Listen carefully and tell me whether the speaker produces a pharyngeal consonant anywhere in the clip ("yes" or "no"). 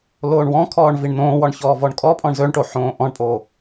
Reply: yes